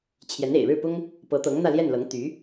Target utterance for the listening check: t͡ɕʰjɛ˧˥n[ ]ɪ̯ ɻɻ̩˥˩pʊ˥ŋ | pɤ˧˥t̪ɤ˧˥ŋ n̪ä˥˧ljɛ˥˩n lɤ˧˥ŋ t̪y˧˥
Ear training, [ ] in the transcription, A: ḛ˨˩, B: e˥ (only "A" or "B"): A